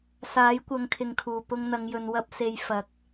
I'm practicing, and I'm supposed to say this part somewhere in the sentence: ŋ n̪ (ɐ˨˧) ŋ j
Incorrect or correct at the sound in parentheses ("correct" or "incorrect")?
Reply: correct